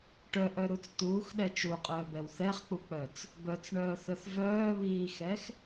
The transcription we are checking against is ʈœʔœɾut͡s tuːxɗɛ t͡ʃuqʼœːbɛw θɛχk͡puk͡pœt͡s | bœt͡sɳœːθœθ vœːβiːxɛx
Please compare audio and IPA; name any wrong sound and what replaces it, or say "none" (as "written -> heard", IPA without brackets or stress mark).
none